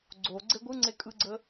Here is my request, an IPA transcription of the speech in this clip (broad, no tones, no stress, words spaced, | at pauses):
ɡ͡ǀo ɡ͡ǀeɡʷɯŋ͡ǀe kʼɯɡ͡ǀə